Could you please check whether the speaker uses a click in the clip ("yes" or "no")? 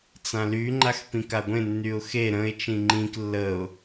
yes